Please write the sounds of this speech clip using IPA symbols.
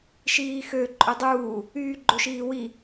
ʃ iː x ø ǃʼ ɵ dˤ uː | yː ɡ͡ǃ o ʃ iː w i

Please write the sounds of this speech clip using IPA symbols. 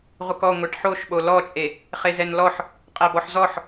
ʁʷ ə k ɔ ŋʷ e ʈ ħ o ʃ ɓ o l ɔ t͡ʃʼ e | χ e z ɛ n l ɔ ħ | qʼ æ b ɔ ħ z ɔ ħ

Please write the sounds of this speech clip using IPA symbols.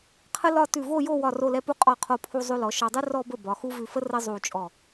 qʰ ə˥ l ɒ˥˧ t ʉ˧˩ v o˥˧ j o˥˧ w ɒ˧˩ r o˧˩ l ɛ˧ p u˧ qʼ ɔ˧˩ qʰ o˧ pʰ u˧ zˤ ʉ˧ l ɔ˩˧ ʃ ɒ˧ dˤ ʉ˥ r ɔ˧ b ə˧˩ b ɒ˩˧ x u˥ v ʉ˧ f ə˥ r ə˥ zˤ u˧˩ t͡ʃʼ ɔ˧˩

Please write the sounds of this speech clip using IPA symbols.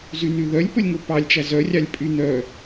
z y n y ð œ lʲ p ɵ lʲ ŋ ɵ p ɑ lʲ t͡ʃ æ z œ rʲ ɑ lʲ pʼ y n œ

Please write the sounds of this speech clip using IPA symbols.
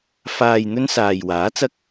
f aː˨ j n̪ ɵ˧ n s aː˨ j w aː˨˥ t͡s ɐ˥ k̚

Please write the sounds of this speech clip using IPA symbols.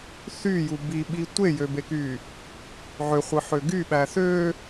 θ y j u b i ɓ i tʷ e j ø b e k y | ʕ ø χʷ ɯ ħ ø ɡ y ɓ æ θ ø

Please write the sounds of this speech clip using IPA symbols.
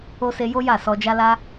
o˧ s e˧ j o˦ j a˦˨ s ɔ˧ d͡ʒ a˦ l a˦

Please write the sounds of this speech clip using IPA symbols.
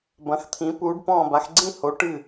b ɐ̃˩˧ x t̪ʰ ĩ˩˧ p uː˩˧ ɖ p ɔ̃ː˧˩ b a˩˧ x ɡ͡ǀ ĩ˥˨ h o˩˧ ʈ ɨ˧˩

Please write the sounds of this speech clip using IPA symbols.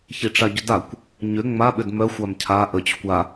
ç i ʈ͡ʂ a ɟ ʏ d a kʷ | ɲ ʏ ŋ͡m a ɓ ʏ d m œ xʷ a m cʰ a ʔ ə t͡ɕ ʏ kʷ a

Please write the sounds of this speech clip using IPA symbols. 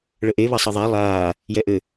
ɭ ə ʔ e β ɐ sˤ ɐ ðˤ a lˠ aː | j ɛ ʔ ɘ

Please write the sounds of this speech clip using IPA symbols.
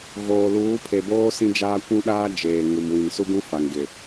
ɣ oː˨ l uː˨˦ pʰ e˨ b oː˦ s ĩ˦ d͡ʒ aː˦ kʷ ũ˦ ɗ aː˦ d͡ʒ eː˨ ŋ u˨ m w ĩ˨ n s u˦ ɡ ũ˦ f a˨ ŋ ɡ ɪ˨

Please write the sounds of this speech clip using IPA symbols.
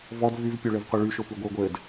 v ɔ d v y v pʲ o ɭ ɘ v qʷ ɘ ɭ y ʃ o p y ɡʷ ɘ ʊ̯ ɡʷ ɘ d

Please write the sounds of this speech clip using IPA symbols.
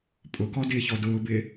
pʼ ʊ k ɔ d ɪː ç ɔ d ʊː b ɪː

